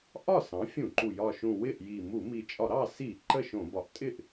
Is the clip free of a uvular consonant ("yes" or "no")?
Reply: yes